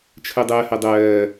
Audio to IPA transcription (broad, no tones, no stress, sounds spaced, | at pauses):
t͡ʃʰ ə dˤ ɜ h ɜ dˤ ɜː